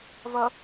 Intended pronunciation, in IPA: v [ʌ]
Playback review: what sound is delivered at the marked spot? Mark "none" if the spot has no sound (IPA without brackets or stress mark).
ʌ